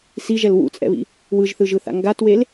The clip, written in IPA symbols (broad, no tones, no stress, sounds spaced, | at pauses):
s i ʒ ɛ l w ṵ t͡sʼ ɛ̰ β ḭ | w ɯ ʒ θ ɯ ʒ ɯ θ a̰ ŋ ɡ a t w e l